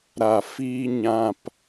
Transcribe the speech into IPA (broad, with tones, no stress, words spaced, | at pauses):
ɾa˨fiː˧ɲã˧p